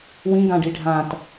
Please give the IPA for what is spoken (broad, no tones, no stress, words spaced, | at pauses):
wĩ ɡãɖiɖʱãt